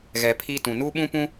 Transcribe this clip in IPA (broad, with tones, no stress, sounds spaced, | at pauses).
ɣ ɛ˨ pʰ iː˦ t ũ˨ n uː˦ ɓ ũ˦ p ũ˦